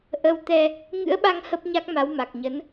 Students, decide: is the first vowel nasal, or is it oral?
oral